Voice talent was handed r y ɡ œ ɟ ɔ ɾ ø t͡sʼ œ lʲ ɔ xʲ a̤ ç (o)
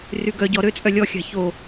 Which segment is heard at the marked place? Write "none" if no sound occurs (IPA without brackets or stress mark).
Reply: o